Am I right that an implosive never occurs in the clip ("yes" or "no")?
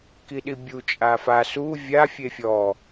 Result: no